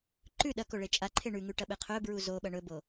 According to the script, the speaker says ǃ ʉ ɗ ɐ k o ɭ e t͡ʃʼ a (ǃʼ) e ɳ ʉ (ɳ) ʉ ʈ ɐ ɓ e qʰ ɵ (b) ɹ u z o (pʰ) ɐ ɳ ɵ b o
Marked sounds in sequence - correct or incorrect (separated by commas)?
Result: incorrect, incorrect, correct, incorrect